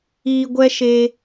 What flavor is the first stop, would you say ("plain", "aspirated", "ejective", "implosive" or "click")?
plain